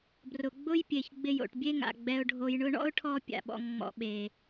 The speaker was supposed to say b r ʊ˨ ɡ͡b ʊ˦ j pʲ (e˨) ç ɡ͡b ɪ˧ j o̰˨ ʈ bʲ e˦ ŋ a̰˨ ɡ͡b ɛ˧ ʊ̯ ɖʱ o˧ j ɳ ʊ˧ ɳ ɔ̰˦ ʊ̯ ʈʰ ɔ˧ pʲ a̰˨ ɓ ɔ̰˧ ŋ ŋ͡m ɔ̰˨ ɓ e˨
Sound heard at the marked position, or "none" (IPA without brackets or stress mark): e˨